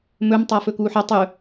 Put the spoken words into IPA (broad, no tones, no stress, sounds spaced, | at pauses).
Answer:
m ɵ m tˤ a f ɵ k uː ħ ɐ tˤ ɵ